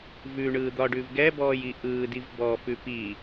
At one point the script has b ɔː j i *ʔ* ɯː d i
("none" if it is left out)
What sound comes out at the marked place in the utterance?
ʔ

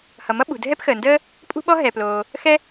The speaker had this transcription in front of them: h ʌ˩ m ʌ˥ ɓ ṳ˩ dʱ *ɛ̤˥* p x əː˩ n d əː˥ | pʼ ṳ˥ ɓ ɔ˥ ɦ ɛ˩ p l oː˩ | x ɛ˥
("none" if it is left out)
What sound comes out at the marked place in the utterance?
ɛ˥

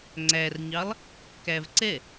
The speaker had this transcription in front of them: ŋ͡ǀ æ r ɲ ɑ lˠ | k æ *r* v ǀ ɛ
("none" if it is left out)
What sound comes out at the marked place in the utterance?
none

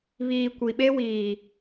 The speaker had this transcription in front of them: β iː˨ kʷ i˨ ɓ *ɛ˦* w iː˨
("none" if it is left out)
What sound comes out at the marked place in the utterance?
e˦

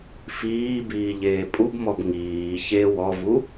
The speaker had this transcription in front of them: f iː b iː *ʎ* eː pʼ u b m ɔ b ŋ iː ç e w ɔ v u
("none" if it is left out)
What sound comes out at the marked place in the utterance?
ʎ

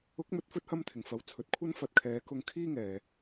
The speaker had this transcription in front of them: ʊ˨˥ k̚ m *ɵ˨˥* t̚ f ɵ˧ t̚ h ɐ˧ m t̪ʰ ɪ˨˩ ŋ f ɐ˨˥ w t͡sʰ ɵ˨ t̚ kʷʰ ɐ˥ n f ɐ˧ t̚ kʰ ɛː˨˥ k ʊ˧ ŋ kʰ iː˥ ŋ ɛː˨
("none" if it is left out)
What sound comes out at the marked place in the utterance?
ɵ˨˥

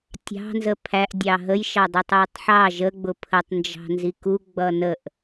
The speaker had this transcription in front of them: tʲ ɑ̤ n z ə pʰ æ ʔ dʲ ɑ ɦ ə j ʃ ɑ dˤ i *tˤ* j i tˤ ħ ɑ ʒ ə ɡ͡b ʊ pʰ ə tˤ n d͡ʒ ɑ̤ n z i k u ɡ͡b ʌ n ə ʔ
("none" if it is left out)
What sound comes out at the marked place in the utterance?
tˤ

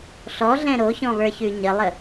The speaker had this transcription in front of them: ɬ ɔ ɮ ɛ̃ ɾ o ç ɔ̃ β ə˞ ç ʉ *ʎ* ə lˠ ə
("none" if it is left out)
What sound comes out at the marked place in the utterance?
ɲ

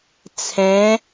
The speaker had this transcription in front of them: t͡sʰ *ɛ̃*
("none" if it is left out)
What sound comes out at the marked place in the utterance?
ɛ̃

